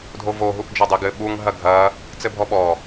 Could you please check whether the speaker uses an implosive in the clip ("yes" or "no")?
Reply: yes